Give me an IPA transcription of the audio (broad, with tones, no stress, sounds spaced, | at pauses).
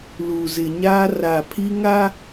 l u˨ z ɪ˨ ɲ aː˦ r a˨ pʰ i˦ ŋ a˦